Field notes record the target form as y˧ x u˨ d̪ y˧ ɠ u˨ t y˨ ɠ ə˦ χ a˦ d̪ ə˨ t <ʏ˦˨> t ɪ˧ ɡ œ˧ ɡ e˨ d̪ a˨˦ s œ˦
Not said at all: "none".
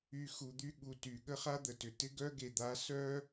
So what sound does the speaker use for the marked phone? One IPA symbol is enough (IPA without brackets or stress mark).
ʏ˨